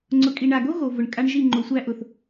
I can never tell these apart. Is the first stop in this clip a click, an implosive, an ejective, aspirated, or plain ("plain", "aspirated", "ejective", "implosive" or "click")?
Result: click